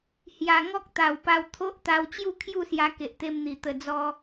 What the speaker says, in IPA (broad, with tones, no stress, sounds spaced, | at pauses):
h j a˨˩ ŋ ɔ˦ k̚ t̪ a˨˩ w p a˧ w t̪ʰ o˦ ʔ t̪ a˧ w t͡ɕ j u˥˧ kʰ j u˥˧ s j a˧ k e˨ ʔ t̪ e˧ m n̪ i˨˩ t̪ ə˧ d͡z ɔ˦